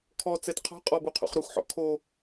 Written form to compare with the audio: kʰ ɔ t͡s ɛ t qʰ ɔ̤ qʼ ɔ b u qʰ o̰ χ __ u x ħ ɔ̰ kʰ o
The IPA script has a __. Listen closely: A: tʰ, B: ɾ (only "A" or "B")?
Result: B